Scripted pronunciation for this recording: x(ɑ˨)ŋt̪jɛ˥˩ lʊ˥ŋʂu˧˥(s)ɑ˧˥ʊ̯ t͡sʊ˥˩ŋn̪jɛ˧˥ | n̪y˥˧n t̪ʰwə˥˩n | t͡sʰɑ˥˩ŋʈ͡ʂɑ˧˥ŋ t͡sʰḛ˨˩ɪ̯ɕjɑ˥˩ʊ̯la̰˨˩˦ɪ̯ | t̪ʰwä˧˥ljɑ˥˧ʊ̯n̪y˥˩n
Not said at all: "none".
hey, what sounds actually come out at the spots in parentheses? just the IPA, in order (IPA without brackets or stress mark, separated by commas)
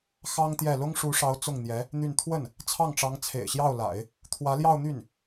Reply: ɑ˥, ʂ